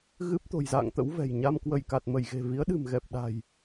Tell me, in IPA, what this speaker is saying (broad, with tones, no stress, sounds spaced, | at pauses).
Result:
ɣ ɨ˦˥ p̚ t̪ o̤˨˩ j z a̰ː˧˨ ŋ t̪ ə̰˧˥ w v ɛ̤˨˩ j ɲ a˧ m k w ə˧˩ j k a˨˩ t̚ m ə˧˩ j ɣ e̤˨˩ v i˨˦ ə̯ ɗ ɨ̤˨˩ m ɣ ɛ˨˩ p̚ ɗ a̤˨˩ j